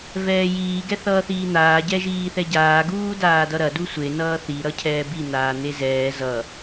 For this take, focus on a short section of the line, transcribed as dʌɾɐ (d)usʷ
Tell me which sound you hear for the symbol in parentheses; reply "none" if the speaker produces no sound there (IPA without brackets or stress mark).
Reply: d